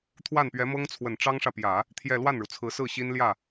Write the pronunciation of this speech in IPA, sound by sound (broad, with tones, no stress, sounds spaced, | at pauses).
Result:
t̪ʰ w a˥˩ n p ɥ ɛ˧˥ m ɤ˥ ŋ t͡sʰ w ə˨˩ n ʈ͡ʂ ɑ˥ ŋ ʂ ä˨ p j ä˨˩˦ | t̪ʰ j ɛ˥˧ l w a˥˩ n ɻ u˩ t͡sʰ ɹ̩˧˥ s ɹ̩˥˩ ɕ i˥ n l j ä˥˩